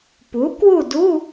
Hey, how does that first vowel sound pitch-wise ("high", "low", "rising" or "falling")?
rising